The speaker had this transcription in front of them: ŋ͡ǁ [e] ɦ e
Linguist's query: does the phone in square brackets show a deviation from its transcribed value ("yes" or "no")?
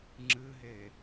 yes